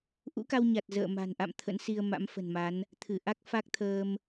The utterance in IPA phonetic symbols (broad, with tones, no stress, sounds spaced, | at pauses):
ʔ ṵ˧˥ k a˧ w ɲ a˨˩ t̚ z ə̰ː˧˨ m a̤˨˩ n ʔ a̰˧˨ m t̪ʰ ə̰˧˥ n s i˧ ə̯ m a̰˧˥ m f ə̤˨˩ n m a˨˦ n | t̪ʰ ɨ˧˩ ʔ a˦˥ k̚ f a˦˥ k̚ t̪ʰ əː˧ m